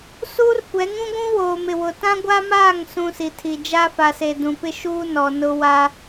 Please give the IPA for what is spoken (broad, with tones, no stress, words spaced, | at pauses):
suː˦rkʷɛ˨˦ŋũ˦ɡʷũ˦ woː˨m ɪ˨wʊ˨ tã˦ɡʷa˦maː˦˨ŋ sũ˦si˨tʰi˨ d͡ʒa˦fa˨se˨ dũ˨pɪ˦ʃuː˦ nɔ˨nʊ˦wa˦